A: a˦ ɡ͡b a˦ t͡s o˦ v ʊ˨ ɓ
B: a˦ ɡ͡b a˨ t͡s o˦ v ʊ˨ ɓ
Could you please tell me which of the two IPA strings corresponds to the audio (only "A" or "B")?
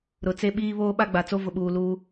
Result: B